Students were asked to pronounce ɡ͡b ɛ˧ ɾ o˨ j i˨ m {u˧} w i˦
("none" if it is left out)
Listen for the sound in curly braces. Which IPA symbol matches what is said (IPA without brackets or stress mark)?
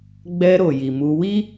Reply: u˧